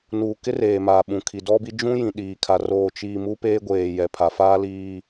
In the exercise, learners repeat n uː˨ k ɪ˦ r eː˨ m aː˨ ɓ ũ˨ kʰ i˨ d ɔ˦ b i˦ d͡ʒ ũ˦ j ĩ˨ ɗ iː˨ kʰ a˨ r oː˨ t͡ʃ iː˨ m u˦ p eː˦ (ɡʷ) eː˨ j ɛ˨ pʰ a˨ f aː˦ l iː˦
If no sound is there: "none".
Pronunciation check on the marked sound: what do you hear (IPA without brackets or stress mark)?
ɡʷ